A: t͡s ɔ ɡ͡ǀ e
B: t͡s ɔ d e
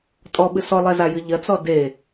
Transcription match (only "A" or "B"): B